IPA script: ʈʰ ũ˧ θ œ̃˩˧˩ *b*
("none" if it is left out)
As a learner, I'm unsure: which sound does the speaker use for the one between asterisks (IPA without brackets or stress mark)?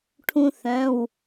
w